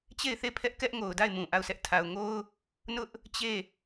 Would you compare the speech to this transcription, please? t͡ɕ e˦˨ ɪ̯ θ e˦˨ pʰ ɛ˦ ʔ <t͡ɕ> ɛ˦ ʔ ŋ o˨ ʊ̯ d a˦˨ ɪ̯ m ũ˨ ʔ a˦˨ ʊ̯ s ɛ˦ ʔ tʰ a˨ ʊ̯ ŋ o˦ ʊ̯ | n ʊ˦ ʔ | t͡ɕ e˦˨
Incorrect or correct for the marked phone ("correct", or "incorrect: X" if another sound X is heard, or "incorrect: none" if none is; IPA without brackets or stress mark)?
incorrect: k